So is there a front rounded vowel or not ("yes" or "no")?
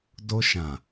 no